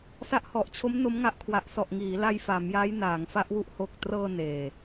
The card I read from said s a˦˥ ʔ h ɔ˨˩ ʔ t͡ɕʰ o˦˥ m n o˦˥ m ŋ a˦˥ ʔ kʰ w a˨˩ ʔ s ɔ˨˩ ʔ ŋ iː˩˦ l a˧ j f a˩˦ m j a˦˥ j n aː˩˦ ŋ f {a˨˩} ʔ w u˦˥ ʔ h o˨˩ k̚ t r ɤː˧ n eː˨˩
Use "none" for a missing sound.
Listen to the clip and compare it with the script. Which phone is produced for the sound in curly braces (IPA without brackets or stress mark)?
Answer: a˦˥